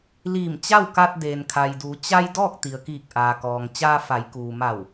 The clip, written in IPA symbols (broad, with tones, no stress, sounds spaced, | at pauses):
l iː˧˩ m t͡ɕ a˥˨ w k a˧ t̚ d eː˩ n kʰ a˩ j d uː˩˧ t͡ɕ a˧ j d ɔː˥˨ k̚ t̪ i˩ ə̯ k iː˧˩ k̚ ʔ aː˩ k ɔː˩ ŋ t͡ɕ aː˧ f a˩˧ j k uː˩ m a˧˩ w